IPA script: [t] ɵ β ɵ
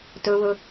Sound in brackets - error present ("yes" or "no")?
no